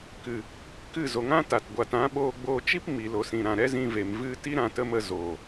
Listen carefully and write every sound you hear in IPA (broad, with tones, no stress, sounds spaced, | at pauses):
k ɨ˨ | k ɨ˦˨ z o˨ ŋ ã˦ t a˨ t ɡʷ a˨ t ã˨˦ ɓ oː˧ ɡ͡b oː˧ t͡ʃ i˦ p m i˨ l o˨ s ĩ˨ ɾ ã˨ ɾ ɛ˦ z ĩ˧ v e˨ m v ɨ˧ t i˦ ɾ ã˧ t ə˦ m ə˧ z oː˨